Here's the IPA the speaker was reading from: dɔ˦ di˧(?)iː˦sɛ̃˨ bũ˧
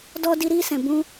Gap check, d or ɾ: ɾ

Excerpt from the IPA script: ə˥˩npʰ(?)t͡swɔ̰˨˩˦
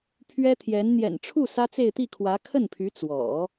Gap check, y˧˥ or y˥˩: y˧˥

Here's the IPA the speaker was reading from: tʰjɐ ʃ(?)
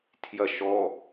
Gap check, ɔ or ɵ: ɔ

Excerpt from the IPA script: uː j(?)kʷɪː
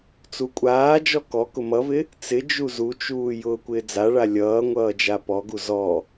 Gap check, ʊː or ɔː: ʊː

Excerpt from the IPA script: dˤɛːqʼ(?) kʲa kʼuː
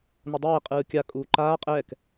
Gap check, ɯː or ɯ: ɯː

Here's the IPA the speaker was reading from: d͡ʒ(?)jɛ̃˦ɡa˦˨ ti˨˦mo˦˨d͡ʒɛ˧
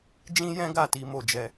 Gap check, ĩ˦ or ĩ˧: ĩ˦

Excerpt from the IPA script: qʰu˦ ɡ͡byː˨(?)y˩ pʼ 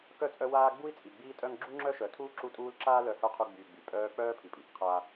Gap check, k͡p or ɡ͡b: ɡ͡b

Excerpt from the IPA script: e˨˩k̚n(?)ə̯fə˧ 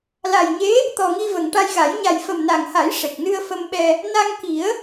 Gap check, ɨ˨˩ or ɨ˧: ɨ˧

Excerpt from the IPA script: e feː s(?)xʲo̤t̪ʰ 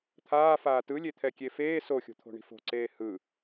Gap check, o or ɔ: o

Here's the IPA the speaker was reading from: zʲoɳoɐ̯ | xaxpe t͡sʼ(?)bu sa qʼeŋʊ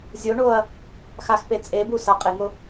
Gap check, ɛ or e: e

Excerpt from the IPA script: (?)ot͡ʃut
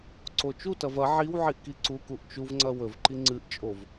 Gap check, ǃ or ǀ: ǀ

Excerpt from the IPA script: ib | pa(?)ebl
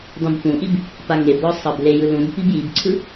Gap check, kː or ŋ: ŋ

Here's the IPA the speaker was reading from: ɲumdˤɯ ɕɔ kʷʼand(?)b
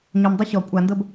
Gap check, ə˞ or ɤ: ɤ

